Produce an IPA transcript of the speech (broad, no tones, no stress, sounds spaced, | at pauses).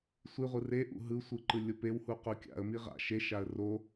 sʷ i ʁʷ ɯ r e ʔ ṵ ɦ ɯ sʷ ɯ ǃ ɯ lʲ o p e w h u q u kʲ a̰ ə̯ m i ʁ a̰ ʃ e ʃ a ə̯ r o